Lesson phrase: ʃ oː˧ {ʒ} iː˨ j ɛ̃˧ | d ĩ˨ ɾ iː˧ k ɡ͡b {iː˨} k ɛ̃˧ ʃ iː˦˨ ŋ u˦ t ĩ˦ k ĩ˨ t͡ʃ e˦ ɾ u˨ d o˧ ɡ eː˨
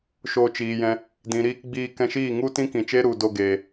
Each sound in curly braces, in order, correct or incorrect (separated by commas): incorrect, incorrect